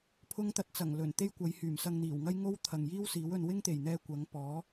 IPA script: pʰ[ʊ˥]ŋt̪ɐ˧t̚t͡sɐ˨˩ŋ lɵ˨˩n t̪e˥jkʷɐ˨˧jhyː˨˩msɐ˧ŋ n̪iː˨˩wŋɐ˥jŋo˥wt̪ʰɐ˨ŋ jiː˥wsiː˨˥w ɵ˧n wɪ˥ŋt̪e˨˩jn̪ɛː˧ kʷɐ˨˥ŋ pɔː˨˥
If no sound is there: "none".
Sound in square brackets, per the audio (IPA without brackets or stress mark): ʊ˥